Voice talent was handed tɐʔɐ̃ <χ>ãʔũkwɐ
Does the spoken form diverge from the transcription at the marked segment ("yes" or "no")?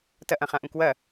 no